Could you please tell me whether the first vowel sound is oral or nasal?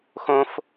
nasal